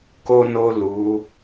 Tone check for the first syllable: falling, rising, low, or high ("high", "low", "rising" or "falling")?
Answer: low